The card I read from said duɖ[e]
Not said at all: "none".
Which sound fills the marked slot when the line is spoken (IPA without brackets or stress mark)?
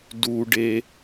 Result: e